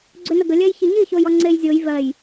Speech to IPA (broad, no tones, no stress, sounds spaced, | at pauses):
ɡ͡ǀ ʏ n ə ɡ ə lʲ ɜ j ç i ɲ i ç o j ɔ ŋ͡ǀ e j zʲ o j v ɜ j